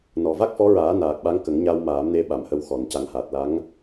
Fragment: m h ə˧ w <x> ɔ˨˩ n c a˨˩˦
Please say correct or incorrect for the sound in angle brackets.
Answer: correct